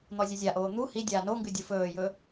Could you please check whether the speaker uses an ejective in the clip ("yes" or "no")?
no